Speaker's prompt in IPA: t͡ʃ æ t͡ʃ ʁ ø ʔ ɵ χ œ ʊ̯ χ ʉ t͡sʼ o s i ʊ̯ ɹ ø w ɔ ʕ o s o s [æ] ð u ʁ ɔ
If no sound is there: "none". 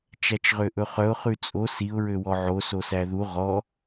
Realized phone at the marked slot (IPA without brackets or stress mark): æ